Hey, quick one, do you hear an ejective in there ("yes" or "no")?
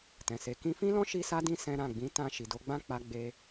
no